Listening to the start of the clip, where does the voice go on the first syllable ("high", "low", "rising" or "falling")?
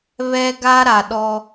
high